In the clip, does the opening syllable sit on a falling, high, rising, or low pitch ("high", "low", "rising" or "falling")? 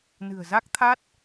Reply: low